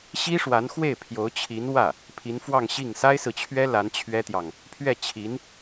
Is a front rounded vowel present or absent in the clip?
absent